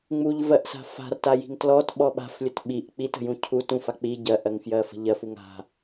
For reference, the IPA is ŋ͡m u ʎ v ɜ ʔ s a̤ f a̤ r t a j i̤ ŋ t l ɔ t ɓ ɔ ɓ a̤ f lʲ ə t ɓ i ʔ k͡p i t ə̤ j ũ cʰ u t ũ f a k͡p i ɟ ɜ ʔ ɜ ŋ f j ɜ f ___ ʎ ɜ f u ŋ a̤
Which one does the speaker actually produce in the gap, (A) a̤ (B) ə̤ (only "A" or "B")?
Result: B